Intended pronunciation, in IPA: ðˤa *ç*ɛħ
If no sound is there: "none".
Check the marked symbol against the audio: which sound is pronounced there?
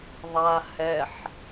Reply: h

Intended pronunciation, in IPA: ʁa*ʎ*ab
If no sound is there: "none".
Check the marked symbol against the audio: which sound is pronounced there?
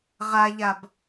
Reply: ʎ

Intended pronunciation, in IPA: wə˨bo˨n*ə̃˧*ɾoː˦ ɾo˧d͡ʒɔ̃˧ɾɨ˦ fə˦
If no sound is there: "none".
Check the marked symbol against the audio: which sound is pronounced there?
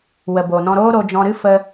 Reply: ɔ̃˧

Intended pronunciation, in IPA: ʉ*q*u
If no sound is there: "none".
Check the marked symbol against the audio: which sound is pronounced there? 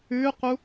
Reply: q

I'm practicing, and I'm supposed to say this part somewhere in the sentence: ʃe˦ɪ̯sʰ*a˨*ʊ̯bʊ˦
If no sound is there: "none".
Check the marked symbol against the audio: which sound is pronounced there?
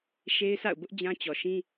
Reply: a̰˦˨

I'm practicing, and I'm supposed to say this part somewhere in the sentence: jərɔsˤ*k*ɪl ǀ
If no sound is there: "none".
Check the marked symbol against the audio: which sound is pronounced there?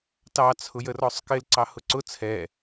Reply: k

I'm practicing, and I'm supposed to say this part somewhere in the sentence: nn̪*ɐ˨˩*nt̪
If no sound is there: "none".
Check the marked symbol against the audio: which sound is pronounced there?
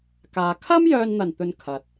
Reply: ɐ˨˩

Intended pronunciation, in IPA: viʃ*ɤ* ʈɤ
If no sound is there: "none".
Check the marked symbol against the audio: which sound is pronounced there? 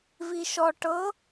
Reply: ɔ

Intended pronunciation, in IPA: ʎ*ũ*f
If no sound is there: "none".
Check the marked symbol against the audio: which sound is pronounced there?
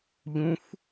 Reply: ũ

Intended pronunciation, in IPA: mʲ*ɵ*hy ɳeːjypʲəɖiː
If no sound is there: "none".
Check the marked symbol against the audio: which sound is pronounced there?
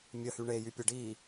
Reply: ə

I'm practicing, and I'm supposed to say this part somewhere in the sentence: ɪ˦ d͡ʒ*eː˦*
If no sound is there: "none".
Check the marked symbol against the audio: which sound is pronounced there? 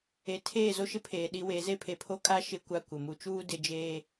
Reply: eː˦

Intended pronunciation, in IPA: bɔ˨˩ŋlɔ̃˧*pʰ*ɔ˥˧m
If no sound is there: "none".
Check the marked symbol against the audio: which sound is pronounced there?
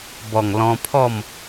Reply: pʰ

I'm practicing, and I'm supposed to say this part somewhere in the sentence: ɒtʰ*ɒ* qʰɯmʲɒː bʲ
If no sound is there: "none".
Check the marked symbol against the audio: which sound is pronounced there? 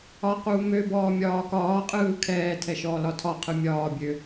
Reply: ɒ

